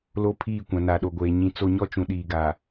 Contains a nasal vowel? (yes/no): yes